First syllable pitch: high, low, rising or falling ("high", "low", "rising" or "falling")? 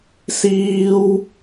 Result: high